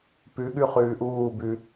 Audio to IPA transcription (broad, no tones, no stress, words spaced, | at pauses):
pʉɠʉ χʉːʔuːbʉ